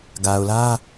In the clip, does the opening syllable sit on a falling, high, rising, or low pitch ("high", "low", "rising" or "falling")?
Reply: low